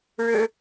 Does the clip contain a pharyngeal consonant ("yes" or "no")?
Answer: no